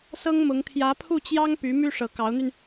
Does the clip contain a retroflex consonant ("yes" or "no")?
yes